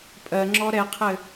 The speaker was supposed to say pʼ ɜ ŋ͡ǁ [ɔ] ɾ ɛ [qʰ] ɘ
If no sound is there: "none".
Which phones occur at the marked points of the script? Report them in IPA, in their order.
ɔ, qʰ

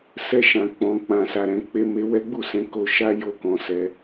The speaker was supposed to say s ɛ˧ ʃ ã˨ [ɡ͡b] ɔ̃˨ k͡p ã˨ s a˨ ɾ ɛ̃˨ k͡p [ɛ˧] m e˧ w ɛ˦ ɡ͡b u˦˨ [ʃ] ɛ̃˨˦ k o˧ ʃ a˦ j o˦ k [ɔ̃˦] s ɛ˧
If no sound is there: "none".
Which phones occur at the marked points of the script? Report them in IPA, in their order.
k͡p, e˧, s, ɔ̃˧

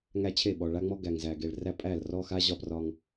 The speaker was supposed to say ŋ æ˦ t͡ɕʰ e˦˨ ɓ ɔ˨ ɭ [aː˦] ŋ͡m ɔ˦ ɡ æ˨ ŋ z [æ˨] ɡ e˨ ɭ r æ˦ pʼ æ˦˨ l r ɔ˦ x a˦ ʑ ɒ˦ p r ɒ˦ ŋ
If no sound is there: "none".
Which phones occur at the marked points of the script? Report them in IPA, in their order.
a˦, æ˨

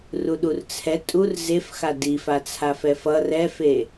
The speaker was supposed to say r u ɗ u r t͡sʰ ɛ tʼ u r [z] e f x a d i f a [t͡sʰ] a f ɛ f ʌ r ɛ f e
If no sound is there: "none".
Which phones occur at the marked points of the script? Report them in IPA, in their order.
z, t͡sʰ

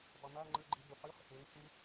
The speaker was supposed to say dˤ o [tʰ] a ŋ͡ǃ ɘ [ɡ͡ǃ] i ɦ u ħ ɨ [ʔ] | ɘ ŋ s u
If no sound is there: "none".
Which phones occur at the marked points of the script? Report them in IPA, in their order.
n̪, ɡ͡ǃ, χ

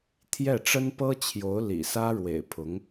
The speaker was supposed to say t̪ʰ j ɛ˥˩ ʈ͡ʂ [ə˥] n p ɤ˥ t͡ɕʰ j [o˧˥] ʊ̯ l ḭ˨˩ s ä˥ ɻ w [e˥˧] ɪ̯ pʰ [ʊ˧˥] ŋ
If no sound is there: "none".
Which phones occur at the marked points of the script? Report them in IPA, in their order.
ə˥, o˧˥, ḛ˨˩, ʊ˧˥

